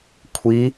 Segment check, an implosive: absent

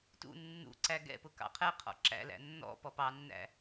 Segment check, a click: present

